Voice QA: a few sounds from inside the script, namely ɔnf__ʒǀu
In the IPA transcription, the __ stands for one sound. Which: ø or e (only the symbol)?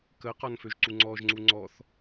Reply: ø